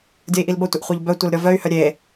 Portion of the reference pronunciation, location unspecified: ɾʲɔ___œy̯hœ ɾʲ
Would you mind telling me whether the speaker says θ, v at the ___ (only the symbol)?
v